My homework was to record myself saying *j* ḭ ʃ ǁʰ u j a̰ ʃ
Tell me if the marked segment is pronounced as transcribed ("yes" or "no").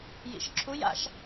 yes